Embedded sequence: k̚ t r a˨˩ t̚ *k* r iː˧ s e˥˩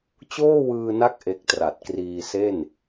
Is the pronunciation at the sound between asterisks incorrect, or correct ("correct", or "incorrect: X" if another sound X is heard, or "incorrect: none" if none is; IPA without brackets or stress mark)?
correct